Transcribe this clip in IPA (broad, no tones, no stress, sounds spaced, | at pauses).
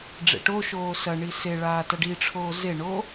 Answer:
ɖ͡ʐ ḛ ʈ o ʃ oː s ɐ ɳ i s e ɭ aː t ɐ ɖ i ʈ͡ʂʰ oː z e ɳ o